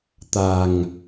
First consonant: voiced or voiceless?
voiceless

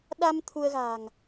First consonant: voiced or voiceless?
voiced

